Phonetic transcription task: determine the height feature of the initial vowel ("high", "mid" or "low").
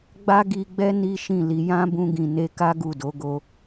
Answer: low